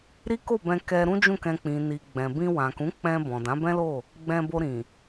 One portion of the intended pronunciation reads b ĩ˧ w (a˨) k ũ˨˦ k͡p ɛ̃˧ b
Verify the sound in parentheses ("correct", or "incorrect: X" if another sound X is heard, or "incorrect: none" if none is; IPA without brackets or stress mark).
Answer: incorrect: ã˨